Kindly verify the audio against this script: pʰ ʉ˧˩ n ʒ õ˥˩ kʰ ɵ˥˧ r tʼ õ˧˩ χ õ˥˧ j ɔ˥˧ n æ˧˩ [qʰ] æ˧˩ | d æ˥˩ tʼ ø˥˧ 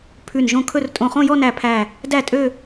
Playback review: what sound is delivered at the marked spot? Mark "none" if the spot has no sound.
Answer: pʰ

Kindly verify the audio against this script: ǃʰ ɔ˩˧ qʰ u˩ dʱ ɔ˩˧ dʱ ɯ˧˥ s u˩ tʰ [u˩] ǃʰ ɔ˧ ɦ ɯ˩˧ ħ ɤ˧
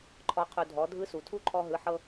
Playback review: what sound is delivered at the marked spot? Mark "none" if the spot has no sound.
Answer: u˥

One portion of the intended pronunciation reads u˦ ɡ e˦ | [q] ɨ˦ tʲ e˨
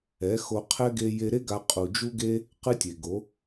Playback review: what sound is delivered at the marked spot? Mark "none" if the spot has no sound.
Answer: q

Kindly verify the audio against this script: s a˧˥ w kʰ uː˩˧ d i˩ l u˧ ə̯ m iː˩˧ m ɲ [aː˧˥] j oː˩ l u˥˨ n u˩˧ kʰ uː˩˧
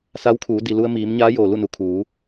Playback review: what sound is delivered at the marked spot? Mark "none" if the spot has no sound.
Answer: aː˧˥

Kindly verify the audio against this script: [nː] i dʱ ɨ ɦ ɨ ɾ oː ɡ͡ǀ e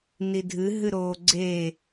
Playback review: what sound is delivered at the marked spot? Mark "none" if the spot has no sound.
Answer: n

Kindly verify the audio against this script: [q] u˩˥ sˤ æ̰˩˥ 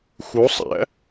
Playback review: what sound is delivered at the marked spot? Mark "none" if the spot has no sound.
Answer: x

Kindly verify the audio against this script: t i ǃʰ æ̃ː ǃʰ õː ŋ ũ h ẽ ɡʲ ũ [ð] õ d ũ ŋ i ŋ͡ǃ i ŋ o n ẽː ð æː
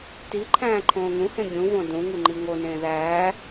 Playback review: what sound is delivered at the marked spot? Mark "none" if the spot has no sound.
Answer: v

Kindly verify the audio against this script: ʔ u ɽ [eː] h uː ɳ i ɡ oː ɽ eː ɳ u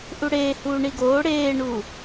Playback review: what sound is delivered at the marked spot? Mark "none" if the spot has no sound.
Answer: eː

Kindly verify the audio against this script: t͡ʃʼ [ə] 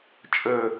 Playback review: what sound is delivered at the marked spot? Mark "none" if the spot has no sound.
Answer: ə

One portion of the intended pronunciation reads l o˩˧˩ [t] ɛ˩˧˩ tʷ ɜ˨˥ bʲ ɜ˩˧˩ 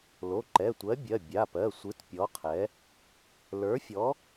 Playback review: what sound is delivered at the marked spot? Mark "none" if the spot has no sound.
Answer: ǃ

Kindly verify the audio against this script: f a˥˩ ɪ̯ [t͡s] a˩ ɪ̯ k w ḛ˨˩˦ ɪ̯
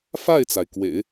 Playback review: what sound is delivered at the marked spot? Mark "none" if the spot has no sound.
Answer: t͡s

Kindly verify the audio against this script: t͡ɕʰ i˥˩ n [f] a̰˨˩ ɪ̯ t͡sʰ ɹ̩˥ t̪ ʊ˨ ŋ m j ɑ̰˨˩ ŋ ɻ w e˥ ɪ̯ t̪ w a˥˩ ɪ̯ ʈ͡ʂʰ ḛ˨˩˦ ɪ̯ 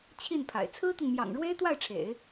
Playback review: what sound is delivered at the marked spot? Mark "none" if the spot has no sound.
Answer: pʰ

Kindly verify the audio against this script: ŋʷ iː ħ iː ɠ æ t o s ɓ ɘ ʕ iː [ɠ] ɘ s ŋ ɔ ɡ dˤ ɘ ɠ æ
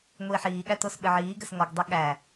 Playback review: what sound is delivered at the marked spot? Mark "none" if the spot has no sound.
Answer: ɡ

